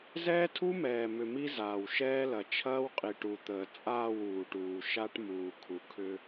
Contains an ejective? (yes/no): yes